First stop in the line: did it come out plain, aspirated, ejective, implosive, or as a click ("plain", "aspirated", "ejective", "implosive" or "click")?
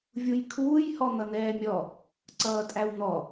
aspirated